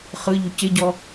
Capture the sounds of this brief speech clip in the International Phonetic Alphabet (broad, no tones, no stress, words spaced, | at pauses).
χɯʎu cɪɟɔ